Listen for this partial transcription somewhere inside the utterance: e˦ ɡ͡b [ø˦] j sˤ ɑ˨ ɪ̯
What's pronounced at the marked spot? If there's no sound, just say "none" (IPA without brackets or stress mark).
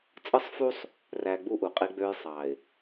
ø˦